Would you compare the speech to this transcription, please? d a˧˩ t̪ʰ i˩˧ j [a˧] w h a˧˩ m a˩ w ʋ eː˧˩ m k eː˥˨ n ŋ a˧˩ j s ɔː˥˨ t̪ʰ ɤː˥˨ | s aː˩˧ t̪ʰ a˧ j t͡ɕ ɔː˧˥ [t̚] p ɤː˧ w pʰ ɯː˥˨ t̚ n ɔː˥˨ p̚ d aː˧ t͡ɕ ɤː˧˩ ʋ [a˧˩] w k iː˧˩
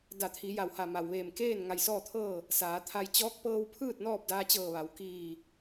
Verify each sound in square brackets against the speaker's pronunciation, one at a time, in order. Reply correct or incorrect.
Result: incorrect: a˩, incorrect: k̚, incorrect: a˩˧

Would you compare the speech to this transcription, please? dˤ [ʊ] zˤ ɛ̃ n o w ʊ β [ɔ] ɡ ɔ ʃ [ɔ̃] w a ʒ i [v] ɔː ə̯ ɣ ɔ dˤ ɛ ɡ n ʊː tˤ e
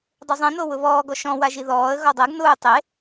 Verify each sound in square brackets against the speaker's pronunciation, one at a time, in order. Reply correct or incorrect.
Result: incorrect: u, incorrect: ɔː, correct, incorrect: ð

